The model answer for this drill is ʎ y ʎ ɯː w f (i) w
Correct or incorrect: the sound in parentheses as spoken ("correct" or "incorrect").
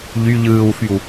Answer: incorrect